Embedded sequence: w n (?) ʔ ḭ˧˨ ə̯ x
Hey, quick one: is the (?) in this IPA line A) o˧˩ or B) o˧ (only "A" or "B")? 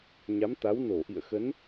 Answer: A